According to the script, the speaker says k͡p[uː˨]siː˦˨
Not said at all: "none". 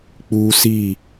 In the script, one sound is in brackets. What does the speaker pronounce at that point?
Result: uː˦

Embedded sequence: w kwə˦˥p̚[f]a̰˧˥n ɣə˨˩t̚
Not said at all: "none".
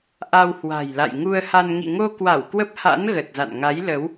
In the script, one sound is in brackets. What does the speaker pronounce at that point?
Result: h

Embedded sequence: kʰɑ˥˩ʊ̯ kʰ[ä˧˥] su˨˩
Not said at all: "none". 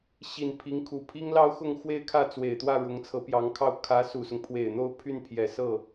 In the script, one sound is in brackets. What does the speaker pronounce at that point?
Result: ä˧˥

